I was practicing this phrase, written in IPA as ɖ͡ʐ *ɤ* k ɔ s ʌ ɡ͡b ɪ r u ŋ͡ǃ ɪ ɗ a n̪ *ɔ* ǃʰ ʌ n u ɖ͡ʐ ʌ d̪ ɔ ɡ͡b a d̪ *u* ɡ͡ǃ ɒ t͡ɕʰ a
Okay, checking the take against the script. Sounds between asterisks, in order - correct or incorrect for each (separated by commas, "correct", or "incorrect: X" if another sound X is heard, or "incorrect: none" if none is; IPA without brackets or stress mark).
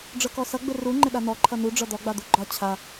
correct, correct, correct